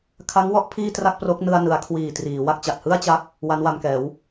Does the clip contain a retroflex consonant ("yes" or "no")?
no